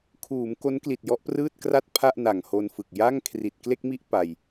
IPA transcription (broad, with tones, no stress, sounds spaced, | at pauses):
kʰ uː˩˦ m k o˦˥ n k l i˨˩ t̚ j ɔ˦˥ ʔ p r ɯː˥˩ t̚ k r a˥˩ t̚ pʰ a˥˩ ʔ n a˨˩ ŋ h o˧ n f ɯ˨˩ k̚ j a˥˩ ŋ kʰ r i˨˩ t̚ k l e˥˩ k̚ m i˥˩ ʔ p a˧ j